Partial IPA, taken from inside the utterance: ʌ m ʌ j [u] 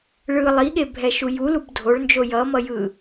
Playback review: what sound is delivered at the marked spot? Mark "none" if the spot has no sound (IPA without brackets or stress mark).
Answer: ɯ